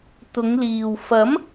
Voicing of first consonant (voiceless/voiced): voiceless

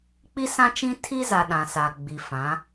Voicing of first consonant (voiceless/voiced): voiceless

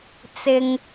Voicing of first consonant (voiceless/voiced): voiceless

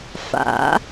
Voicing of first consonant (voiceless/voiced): voiceless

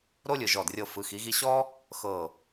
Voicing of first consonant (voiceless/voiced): voiced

